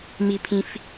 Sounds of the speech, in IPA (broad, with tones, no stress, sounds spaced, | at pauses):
m i˧ pʰ ĩ˧ f